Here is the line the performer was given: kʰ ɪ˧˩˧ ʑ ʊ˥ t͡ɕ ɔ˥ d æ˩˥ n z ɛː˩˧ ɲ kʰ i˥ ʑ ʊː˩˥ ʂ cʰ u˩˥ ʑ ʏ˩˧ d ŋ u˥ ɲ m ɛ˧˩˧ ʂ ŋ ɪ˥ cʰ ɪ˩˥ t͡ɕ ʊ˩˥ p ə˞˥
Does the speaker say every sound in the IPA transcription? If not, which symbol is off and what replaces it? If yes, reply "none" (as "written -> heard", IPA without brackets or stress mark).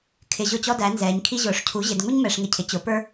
ʏ˩˧ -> ɪ˩˧